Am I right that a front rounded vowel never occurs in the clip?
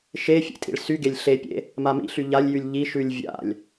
no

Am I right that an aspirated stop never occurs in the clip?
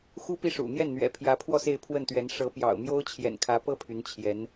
no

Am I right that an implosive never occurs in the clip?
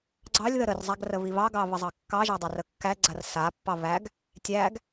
yes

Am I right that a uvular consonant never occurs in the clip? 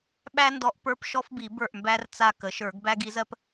yes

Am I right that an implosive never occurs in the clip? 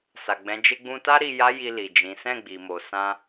yes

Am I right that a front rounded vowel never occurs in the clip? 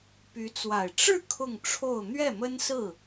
no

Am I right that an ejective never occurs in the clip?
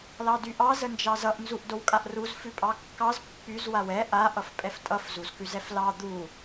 no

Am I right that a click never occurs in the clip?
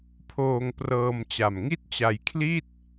yes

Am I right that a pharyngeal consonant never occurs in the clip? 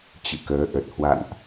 yes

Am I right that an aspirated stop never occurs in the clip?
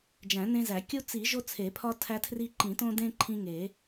no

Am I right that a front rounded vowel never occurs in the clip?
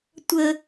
yes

